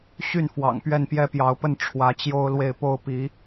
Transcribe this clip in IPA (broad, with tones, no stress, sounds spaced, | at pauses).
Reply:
ɕ y˥˩ n f w ɑ̰˨˩ ŋ p ɥ ɛ˥˩ n p j ɛ˥ p j ɑ˧˥ ʊ̯ p ə˥˩ n ʈ͡ʂʰ w ä˧˥ t͡ɕ j o˥ ʊ̯ l w e˥˩ ɪ̯ p o˥ ʊ̯ p i˧˥